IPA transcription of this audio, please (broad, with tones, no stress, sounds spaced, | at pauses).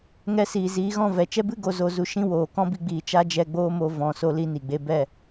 ŋ ɛ˧ s iː˨ z iː˨˦ ɣ ɔ̃˦˨ v ɛ˨ t͡ʃ ɛ˦ b ɨ˦ ɡ o˧ z o˧ z u˧ ʃ ĩ˦ w oː˨ k ɔ̃˦ b i˧ ɡ͡b iː˨ t͡ʃ a˦ d͡ʒ ɛ˧ ɡ͡b oː˦ m o˧ v ɔ̃˨ s o˧ l i˧ n i˨ ɡ͡b e˦ b ɛ˦˨